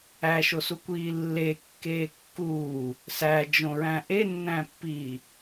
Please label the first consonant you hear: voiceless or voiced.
voiceless